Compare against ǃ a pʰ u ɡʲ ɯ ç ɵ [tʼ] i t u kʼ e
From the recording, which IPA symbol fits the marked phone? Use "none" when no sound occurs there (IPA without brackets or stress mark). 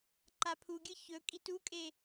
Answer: kʼ